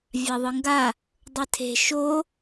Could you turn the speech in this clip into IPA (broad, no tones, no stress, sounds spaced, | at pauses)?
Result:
vʲ a ðˤ ɯ ŋ ɡ a | dˤ ɯ tʰ e̤ ʃ o